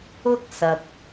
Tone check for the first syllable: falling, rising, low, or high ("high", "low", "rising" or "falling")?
high